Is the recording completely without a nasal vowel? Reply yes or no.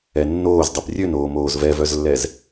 yes